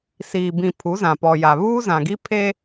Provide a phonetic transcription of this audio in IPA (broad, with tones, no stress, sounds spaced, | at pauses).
s iː˨ b ĩ˨ pʰ u˨˦ z ã˨ p ɔ˨ j a˨ β uː˦ z ã˨ ɡ i˦ pʰ e˦